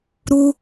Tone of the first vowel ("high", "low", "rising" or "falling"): high